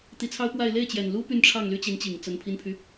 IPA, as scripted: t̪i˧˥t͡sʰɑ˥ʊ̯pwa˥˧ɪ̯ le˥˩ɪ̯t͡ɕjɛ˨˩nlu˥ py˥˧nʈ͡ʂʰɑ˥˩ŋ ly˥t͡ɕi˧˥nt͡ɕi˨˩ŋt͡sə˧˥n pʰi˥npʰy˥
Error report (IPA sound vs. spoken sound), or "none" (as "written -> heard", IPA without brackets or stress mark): none